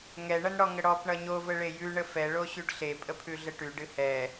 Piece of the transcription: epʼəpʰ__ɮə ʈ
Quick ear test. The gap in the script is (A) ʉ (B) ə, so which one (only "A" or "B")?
A